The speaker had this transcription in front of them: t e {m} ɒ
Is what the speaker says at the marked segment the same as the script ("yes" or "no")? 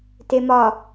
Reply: yes